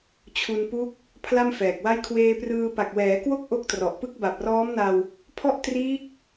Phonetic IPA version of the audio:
t͡ɕʰ u˧ n p u˦˥ k̚ | pʰ l a˥˩ m f ɛː˨˩ k̚ w a˥˩ j kʰ w eː˧ p r ɯː˧ p a˨˩ k̚ w ɛː˩˦ k w o˥˩ k̚ ʔ o˦˥ k̚ t r ɔ˨˩ ʔ p ɯ˥˩ k̚ b a˨˩ p̚ r ɔː˦˥ m n a˧ w | pʰ ɔ˥˩ ʔ t r iː˦˥ k̚

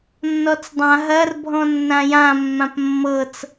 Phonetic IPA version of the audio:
nː ɔ t͡s dˤ ã ɦ ɐ r bʱ ɔ̃ nː ã j ã mː ã p mː ɤ t͡s

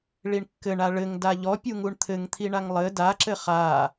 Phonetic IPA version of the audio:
ɭ i ɳ kː ɘ ɳ a ɭ ɘ ŋ d a ʎ ɔ pʲ u ŋ u ɳ t̪ʰ ɘ ŋ t̪ʰ i ɳ a ŋ lˠ ɘ d a ǁ ɘ χ a

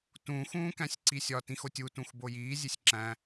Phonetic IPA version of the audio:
t ũ x ũː k æ̃ sʲ ǀ i sʲ ɒ t ĩ x o tʲ u t ũ x b o j iː zʲ e sʲ ǁ æ̃

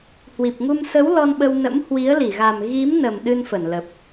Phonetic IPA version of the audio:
h w i˨˩ p̚ ŋ u˧ m s ə˨˦ w l ɔ˧ n ɓ ə˧ w n ə̰˧˥ m h w i˨˦ ə̯ l i˧˩ ɣ a˨˩ m ɣ i˨˦ m n ə˨˩ m ɗ ɨ˧ n f ə˧˩ n l ə˨˩ p̚

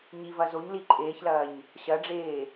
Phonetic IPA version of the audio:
ɲ i v ɐ z o ɲ l i ǃʼ eː ç l ɐː ɲ | ɕ ɐ ɖ͡ʐ eː

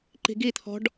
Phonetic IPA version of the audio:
ǃ i̤ ɡ i t̪ʰ ɔ̤ ɖ

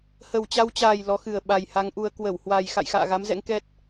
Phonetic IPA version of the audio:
h ə˨˩ w t͡ɕ a˧ w t͡ɕ aː˨˩ j l ɔ˨˦ x ɨ˨˩ ə̯ ɓ a˨˩ j h a˨˦ ŋ ʔ u˧ ə̯ k w ə˧˩ w h w a˨˩ j x a̰˧˨ j x a̰ː˧˨ ɣ a˨˦ m z ɛ̰˧˥ ŋ k ɛ˦˥ t̚

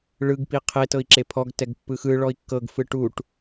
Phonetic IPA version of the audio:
ɭ ɯ ɡ p i qʰ e t ɤ i̯ ǁ e pʰ ɔ ɡ t ɛ ɡ pː ɯ x ɯ ɭ ɔ i̯ kː ɤ ɡ f ɯ ʈ u ʈ

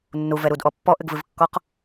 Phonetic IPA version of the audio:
nː u v ɛ ɾ u d ʔ ɔ pː ɔ ʔ ɘ ɡ v ɨ v kː ɔ q

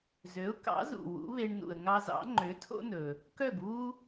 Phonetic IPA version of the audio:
z ø˩˥ ʊ̯ k ɑ̰˩˥ z ṵ˩ w ṵ˩˥ β e˧ ɳ n ṵ˩ ə̯ ŋ ɑ˧ z ɑ̰˩˥ ŋ͡ǃ ø˩˥ tʰ o̰˥ n ɵ˩ | k œ˥˩ ɡ β u˥

